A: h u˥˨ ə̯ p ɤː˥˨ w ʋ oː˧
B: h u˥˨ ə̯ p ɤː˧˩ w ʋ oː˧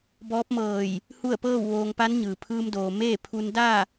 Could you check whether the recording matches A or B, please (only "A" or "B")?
A